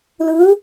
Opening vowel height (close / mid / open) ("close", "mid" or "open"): close